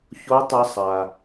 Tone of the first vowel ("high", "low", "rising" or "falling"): rising